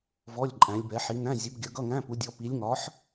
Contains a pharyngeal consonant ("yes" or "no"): yes